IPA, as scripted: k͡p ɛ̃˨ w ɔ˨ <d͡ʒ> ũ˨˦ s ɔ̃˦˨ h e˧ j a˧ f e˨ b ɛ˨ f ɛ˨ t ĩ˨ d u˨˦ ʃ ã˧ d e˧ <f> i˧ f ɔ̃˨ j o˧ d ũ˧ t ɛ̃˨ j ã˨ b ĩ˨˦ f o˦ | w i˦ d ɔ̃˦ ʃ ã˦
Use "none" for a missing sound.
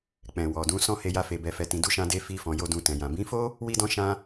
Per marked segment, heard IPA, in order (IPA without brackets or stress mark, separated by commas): d, f